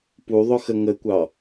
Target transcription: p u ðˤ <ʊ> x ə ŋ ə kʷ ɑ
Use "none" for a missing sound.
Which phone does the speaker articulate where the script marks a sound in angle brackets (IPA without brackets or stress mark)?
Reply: ʊ